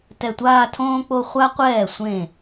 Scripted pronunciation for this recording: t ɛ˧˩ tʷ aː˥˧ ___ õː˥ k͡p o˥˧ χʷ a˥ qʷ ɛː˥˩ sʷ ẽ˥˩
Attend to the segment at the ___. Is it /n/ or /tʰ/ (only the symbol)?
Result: tʰ